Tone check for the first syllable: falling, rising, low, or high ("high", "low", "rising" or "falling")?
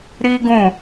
high